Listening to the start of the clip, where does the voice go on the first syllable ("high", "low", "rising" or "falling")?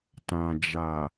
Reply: low